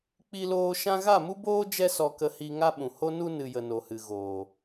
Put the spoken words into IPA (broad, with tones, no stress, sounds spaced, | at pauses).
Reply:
k͡p i˦ l oː˦ ʃ ã˦ ɣ a˦˨ m u˦ b oː˦ d͡ʒ ɛ˦ s ɔ˧ k ə˧ h i˧ ŋ a˦ ɓ ũ˨ h o˦ n u˦ n ɨ˨ j ə˨ n o˨ h ɨ˨ ɣ oː˨